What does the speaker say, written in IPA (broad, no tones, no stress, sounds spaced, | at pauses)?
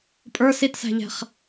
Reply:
pʼ ə˞ s i t s æ̤ ʎ ɛ̤ χ